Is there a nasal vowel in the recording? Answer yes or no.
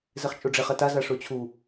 no